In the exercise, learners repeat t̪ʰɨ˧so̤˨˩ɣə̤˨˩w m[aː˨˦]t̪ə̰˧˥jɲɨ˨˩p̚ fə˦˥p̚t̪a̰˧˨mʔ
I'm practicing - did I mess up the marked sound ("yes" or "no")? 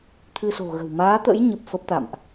no